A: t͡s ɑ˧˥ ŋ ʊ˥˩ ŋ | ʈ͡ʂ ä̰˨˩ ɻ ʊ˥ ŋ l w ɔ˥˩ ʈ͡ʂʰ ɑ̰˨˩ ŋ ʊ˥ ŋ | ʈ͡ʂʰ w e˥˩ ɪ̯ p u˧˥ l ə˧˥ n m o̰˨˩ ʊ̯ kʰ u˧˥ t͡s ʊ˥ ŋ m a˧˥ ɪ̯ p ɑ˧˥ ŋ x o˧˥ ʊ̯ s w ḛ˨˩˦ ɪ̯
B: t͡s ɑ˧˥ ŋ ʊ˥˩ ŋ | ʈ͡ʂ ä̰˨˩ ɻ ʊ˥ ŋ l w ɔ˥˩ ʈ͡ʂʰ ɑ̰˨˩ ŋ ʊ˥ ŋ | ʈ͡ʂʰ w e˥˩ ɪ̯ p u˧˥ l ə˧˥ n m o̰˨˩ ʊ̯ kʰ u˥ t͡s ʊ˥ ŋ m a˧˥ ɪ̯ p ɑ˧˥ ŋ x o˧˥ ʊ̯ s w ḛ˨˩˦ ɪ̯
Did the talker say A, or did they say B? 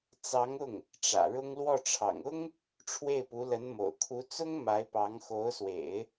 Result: A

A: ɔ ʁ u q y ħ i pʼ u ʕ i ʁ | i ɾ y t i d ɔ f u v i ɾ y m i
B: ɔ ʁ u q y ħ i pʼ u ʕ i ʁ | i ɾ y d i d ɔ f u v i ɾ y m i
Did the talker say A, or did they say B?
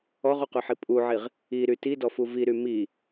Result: A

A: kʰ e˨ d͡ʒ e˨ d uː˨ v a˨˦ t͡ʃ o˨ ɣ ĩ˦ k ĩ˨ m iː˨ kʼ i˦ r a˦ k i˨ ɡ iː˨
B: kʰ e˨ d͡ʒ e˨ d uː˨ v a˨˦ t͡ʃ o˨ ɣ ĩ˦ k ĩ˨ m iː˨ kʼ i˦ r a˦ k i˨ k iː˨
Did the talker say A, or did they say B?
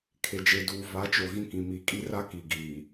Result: A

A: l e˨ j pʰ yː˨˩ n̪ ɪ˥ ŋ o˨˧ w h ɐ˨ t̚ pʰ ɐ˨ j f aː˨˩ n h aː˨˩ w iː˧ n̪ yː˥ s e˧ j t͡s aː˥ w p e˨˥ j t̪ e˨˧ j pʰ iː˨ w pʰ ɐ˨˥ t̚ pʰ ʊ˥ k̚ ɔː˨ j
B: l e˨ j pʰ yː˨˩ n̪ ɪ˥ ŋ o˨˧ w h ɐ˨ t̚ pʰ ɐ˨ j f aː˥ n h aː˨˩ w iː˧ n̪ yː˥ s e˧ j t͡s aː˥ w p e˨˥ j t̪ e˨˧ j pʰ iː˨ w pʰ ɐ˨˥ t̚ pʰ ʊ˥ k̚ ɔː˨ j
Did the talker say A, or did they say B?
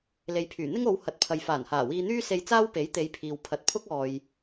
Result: A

